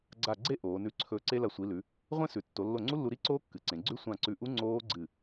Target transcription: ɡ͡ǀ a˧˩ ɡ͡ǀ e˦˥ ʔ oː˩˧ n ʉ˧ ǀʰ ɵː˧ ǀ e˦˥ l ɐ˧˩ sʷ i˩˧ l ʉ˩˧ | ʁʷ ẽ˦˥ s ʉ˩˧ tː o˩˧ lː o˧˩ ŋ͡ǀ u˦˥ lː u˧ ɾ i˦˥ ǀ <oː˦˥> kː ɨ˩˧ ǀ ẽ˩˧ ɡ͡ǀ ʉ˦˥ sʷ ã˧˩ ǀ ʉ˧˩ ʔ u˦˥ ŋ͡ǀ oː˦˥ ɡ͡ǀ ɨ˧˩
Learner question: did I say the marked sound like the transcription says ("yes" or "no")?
yes